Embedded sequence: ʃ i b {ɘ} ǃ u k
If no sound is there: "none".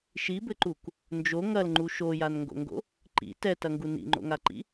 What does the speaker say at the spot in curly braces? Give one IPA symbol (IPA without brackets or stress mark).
ɘ